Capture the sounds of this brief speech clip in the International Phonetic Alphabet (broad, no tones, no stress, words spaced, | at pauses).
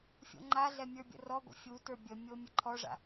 fʲo̰ŋ͡ǃaɮɛ mʲə˞bʲə̰rɔɡʷə̰ fʲutə˞ bʲəmʲo mʲəǃʰɔʐa̰